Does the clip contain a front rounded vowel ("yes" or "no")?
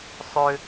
yes